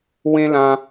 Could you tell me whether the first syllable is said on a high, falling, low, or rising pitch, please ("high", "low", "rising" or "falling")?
high